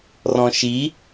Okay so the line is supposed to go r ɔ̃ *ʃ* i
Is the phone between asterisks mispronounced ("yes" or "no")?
no